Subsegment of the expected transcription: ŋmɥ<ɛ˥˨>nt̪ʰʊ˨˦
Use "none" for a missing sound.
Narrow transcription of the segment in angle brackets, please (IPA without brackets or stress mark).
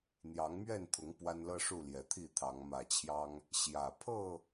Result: ɛ˥˨